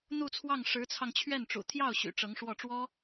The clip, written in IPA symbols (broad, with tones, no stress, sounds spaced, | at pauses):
n̪ u˥˧ t͡sʰ w ɑ˥˩ ŋ ʂ ɻ̩˧˥ t͡sʰ ɑ˧ ŋ t͡ɕʰ ɥ ɛ˥˩ n ʈ͡ʂ ṵ˨˩ t̪ʰ j ɑ˥˩ ʊ̯ ɕ y̰˨˩ ʈ͡ʂ ɤ˧˥ ŋ ʂ w ɔ˥˩ ʈ͡ʂ w ɔ˥